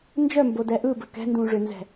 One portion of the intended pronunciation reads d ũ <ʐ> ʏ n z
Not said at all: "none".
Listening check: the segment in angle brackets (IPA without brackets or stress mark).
ʐ